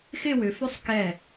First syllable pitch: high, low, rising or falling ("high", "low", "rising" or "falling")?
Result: falling